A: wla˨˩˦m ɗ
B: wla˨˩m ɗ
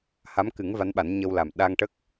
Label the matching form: B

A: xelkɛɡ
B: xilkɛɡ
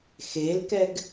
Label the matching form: A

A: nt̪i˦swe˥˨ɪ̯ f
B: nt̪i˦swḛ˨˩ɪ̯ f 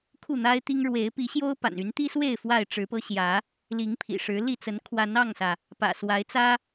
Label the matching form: A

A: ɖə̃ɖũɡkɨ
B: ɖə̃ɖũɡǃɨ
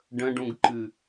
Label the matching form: B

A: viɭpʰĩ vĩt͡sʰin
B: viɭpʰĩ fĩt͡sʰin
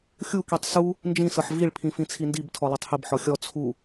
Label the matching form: B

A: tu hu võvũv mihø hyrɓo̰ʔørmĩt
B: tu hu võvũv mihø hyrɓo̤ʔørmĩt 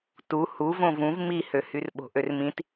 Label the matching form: B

